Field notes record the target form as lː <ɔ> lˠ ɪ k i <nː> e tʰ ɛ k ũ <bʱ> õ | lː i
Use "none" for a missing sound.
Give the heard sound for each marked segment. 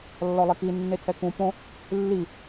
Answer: ɔ, nː, p

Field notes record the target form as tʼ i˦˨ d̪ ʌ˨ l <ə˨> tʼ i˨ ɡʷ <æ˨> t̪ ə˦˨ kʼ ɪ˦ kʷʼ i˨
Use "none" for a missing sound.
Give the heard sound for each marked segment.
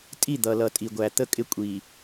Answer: ʌ˨, æ˨

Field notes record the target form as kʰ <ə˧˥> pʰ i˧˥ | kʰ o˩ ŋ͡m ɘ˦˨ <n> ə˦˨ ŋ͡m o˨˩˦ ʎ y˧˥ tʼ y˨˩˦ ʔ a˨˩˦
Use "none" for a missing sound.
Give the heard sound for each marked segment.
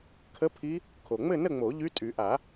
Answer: ə˧˥, n

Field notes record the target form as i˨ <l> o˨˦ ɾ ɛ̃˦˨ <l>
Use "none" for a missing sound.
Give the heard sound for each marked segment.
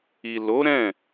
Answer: l, none

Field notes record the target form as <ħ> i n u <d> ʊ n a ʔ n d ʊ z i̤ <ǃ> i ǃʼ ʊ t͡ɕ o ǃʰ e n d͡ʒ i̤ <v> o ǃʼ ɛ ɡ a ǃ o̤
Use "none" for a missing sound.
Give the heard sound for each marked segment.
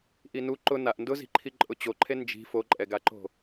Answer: ʔ, ǃ, ǃʰ, f

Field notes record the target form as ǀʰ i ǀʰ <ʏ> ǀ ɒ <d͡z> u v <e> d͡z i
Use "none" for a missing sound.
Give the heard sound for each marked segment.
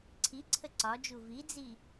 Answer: ə, d͡ʒ, i

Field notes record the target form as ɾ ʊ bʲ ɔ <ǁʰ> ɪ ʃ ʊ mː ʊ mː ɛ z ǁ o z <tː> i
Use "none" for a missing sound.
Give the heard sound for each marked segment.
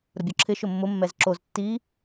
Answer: ǁʰ, tː

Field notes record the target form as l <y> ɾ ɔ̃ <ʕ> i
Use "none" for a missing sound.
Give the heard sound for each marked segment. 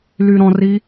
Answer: y, r

